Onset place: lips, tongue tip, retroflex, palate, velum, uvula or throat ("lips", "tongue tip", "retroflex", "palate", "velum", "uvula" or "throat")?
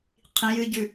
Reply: uvula